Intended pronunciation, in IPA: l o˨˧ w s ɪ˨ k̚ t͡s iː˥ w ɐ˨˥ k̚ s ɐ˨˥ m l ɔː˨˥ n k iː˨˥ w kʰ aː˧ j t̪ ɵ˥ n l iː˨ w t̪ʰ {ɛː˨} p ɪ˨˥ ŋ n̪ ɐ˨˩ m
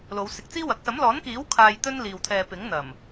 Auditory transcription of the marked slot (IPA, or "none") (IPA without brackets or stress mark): ɛː˨